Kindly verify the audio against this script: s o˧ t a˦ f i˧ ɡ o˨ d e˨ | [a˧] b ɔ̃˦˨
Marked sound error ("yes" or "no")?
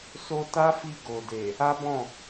yes